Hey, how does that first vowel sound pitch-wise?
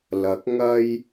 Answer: rising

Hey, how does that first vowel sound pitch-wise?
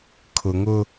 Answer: low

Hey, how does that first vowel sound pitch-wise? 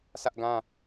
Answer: high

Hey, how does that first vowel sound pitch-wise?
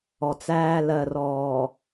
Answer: low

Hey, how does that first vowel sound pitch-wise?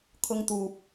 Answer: high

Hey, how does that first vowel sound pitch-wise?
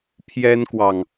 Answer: high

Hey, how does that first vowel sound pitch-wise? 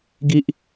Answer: high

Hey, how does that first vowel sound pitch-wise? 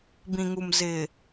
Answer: low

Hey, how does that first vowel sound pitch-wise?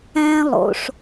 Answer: high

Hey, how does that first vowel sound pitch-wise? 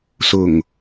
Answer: low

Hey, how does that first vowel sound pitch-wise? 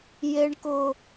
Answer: high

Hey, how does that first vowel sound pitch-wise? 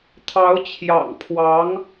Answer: rising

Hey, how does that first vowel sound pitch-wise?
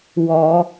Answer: rising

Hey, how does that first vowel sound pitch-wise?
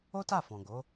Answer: high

